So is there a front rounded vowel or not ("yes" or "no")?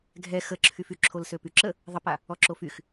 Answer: yes